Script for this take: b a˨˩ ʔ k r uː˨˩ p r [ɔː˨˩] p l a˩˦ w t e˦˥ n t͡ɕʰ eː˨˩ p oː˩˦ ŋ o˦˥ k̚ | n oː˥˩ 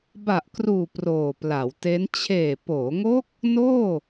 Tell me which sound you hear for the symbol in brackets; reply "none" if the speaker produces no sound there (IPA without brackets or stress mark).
oː˨˩